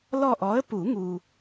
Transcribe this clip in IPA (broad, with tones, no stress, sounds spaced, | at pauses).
l ɔ˦˨ ʔ ɔ˨˥ ə̯ p u˨˩˦ ŋ u˨